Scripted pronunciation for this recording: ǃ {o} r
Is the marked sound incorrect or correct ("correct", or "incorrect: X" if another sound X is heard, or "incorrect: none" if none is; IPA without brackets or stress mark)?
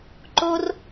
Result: correct